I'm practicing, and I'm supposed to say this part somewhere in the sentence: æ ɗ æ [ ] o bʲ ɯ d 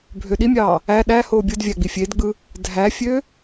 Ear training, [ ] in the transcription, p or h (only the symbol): h